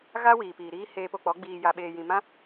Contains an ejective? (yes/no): no